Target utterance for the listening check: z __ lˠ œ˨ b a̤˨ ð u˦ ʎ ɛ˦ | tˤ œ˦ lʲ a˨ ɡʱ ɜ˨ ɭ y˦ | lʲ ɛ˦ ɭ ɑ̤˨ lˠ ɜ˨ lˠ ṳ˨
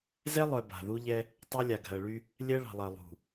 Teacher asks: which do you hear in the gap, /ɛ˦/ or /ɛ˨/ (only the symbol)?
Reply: ɛ˦